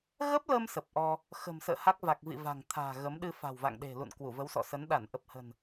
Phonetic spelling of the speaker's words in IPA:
ɣ ə˦˥ p̚ l əː˧ m s ə˨˩ p̚ ʔ ɔ˧ | x ə̤˨˩ m s ə̰ː˧˨ h a˦˥ k̚ v a˨˩ k̚ v ḭ˧˨ v a̤˨˩ ŋ t̪ʰ a̤ː˨˩ ɣ ə˨˦ m ɗ ɨ˧ f a̤˨˩ w v a̰˧˨ ŋ ɗ e̤˨˩ l ṵ˧˨ n k w u˧˩ v ə˨˦ w s ɔ̰˧˨ s ə˨˦ n ɗ a˧˩ n ʔ ə˨˩ p̚ h ə̤˨˩ n

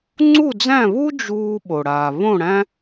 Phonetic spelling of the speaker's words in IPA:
ŋ͡ǀ u˥˨ d͡z æ̃˥˨ β u˥ d͡ʒ uː˧ ɓ o˩ ɽ aː˩ β õ˥˨ ɽ æ̃˥

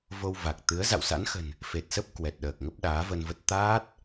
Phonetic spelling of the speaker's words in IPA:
v o˧ w v a˨˩ k̚ t̪ ɨ˨˦ ə̯ z a̰˧˨ w s a̰˧˥ n x ə̤˨˩ n | f e˨˩ t̚ s ə˦˥ p̚ k w ɛ˨˩ t̚ ɗ əː˨˩ k̚ ŋ ə˦˥ p̚ ɗ aː˨˦ v ə˧ n v ə˦˥ t̚ t̪ aː˦˥ t̚

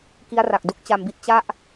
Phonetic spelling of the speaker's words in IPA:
k i˦˥ a̯ r a˨˩ k̚ d u˥˩ k̚ t͡ɕ a˧ m b i˥˩ t̚ t͡ɕ a˥˩ ʔ

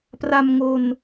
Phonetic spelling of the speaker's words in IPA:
p r a˧ m ŋ o˧ n

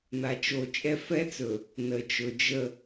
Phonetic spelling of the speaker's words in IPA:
n̪ a˦ t͡ʃ o˦ t͡ʃʼ ɛ˦ f ɛ˦ t͡s ɵ˨ | n ə˨ t͡ʃ ɵ˨ d͡ʒ ə˦˨

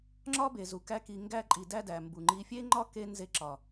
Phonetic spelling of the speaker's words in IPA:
ŋ͡ǁ ɒ˦ b e˨ z u˨ k æ˧ k i˨ ŋ ɡ æ˧ ǃʼ i˨ d æ˦ d æ˨ m b u˨ ŋ͡ǃ i˧ fʲ e˦ ŋ͡ǃ ɒ˦ k e˧ n z e˧ ǁ ɒ˨

